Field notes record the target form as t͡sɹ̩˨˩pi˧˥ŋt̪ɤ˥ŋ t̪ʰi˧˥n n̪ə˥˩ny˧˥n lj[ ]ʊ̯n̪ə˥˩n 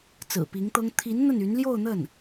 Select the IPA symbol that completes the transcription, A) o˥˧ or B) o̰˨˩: A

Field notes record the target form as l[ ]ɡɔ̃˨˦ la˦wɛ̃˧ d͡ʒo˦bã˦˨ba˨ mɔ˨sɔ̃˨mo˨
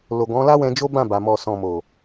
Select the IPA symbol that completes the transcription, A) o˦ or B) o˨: B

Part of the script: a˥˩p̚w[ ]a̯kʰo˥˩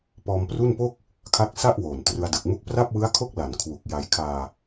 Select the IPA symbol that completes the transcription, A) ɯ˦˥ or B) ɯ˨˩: A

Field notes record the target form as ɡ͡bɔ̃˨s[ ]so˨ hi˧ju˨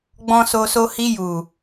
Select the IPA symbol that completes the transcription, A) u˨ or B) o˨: B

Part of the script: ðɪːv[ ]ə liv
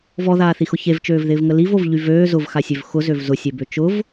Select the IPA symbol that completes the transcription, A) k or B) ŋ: B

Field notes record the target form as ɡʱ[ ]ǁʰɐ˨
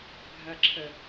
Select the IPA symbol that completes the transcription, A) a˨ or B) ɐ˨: A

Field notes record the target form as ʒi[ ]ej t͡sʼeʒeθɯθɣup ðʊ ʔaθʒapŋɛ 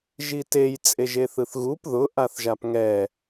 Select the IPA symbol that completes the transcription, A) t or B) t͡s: A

